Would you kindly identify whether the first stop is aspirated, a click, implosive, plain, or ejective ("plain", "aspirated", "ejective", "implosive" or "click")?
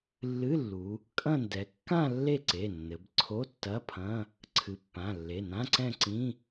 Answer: ejective